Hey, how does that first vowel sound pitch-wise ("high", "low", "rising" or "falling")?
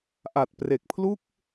low